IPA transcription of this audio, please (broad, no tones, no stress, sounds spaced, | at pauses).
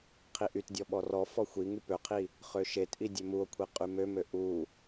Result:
qʰ i ʔ y t dʲ ɔ ɓ ɔ r ɔ f ɔ xʷ i ŋ y p ø qʰ i | χ ø ʃ e t ʔ i dʲ ø m u o̯ kʷʰ i qʼ y m ø m ø ʔ u